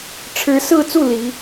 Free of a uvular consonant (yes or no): yes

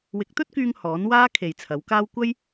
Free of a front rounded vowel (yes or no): no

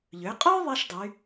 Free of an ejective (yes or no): no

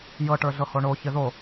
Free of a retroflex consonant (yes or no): no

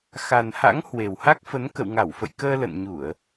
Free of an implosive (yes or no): yes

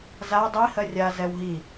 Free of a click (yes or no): yes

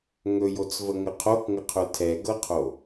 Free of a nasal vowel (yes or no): yes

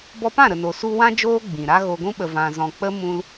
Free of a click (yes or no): yes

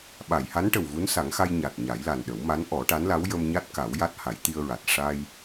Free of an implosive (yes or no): no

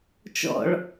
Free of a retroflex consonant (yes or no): no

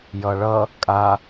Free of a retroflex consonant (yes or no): no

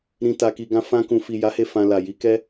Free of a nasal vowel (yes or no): no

